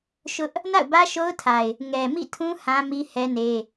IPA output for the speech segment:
ʃ ʊ˦ ʔ | n a̰˦˨ ʊ̯ b ä˦ ʃ o˦ ʊ̯ tʰ a˨ ɪ̯ | ŋ ɛ˨ m ḭ˦˨ tʰ ũ˦ h ã˦ m i˦ h ɛ˦ n e˦

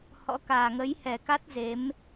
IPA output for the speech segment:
h ɔ̰˧˥ k aː˨˩ ŋ ə˨˦ j h ɛ˨˩ k a˦˥ t̚ z e˨˦ m

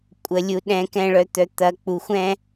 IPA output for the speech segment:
kʷʼ ə˨ lʲ u˨ ɗ ɛ̃˨ k ɛ̃˨ ɭ œ˨ t̪ œ˨ t̪ ɐ˨ k͡p u˨ xʷ ɛ̃˦

